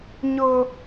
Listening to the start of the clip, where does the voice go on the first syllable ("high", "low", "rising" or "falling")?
high